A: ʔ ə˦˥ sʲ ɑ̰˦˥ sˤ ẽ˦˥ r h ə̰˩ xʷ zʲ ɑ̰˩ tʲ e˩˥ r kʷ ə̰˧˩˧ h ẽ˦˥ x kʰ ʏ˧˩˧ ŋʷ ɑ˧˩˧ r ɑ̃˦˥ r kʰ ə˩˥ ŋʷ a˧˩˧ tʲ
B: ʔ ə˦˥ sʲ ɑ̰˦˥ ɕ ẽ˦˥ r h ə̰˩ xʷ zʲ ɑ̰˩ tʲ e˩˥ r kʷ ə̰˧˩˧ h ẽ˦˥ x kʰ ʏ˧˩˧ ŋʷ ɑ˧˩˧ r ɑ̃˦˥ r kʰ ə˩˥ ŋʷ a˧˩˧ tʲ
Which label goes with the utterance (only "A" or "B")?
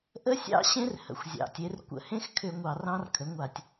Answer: B